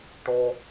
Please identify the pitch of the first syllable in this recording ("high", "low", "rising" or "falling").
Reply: high